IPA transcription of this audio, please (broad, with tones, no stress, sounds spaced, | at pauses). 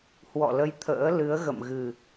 h w ɔ̰˧˨ l ə˨˦ j t̪ʰ ə̰ː˧˥ l ɨ˨˦ ə̯ ɣ ə̰˧˨ m ɣ ɨ˨˩